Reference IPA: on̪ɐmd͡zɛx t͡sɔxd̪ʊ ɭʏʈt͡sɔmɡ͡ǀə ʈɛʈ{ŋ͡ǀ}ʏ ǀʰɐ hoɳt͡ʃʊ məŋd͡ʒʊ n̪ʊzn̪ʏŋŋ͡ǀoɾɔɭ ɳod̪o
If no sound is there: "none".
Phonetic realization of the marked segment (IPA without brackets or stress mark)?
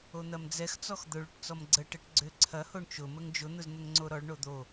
ɡ͡ǀ